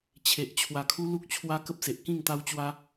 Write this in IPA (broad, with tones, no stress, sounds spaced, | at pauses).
t͡ɕʰ e˨ ʔ t͡ɕʰ w a˧ kʰ u˦ l u˦ k̚ t͡ɕʰ w a˦ k ə˦ p̚ s e˨ ʔ k ĩ˥˧ ŋ t̪ a˦ w t͡ɕ w a˦